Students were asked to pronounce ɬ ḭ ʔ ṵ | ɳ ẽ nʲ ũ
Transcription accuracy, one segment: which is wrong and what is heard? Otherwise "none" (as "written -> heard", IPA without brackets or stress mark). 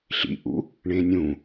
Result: none